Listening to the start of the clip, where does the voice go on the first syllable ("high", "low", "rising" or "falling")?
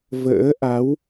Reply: rising